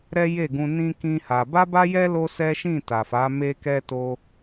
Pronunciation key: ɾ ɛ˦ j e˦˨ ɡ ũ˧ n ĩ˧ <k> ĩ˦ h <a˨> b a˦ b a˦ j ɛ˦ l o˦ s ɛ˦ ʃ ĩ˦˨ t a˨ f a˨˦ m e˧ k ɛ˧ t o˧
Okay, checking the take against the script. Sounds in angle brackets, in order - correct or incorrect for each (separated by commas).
correct, incorrect